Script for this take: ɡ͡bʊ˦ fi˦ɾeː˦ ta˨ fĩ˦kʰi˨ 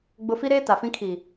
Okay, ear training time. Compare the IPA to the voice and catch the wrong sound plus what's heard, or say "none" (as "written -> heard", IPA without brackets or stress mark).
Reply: none